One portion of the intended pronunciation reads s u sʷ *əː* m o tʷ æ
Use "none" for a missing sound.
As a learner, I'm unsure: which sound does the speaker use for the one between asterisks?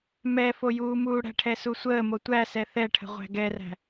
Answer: əː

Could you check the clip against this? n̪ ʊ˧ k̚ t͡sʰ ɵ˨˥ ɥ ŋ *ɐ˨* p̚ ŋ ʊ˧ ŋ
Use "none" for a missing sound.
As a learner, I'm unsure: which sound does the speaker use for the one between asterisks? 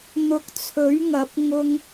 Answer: ɐ˨˥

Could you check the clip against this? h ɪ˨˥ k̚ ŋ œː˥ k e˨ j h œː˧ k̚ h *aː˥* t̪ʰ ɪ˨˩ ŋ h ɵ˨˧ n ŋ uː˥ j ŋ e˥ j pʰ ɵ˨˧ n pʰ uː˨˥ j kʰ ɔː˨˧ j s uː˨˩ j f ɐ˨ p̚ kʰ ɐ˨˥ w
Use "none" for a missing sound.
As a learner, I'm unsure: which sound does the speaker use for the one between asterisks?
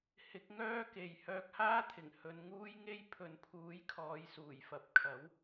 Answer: aː˥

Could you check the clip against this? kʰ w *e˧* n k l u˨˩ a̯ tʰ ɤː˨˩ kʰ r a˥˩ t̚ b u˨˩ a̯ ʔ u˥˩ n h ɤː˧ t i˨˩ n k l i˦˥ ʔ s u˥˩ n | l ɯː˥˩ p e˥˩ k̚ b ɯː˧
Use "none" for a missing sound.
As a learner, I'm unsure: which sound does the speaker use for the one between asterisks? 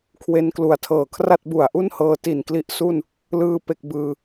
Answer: e˧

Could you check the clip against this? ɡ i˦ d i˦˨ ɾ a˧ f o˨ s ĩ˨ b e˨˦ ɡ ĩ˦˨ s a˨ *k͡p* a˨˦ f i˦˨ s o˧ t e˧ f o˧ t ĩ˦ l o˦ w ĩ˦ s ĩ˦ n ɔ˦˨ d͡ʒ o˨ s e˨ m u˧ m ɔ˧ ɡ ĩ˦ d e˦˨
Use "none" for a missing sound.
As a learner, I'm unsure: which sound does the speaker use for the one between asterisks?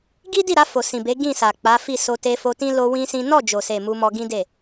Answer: k͡p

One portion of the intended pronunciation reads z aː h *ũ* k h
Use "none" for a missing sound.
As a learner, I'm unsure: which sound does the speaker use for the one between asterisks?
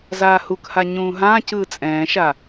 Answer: u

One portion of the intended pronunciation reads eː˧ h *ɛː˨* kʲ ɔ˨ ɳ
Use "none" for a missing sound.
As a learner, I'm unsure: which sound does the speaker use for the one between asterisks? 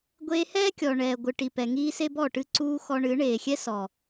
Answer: ɛː˦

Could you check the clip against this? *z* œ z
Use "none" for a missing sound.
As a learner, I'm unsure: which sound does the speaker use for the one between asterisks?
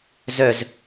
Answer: z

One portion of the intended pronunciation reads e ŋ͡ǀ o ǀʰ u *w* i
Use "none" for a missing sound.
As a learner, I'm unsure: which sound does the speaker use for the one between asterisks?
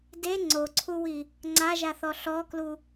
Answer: w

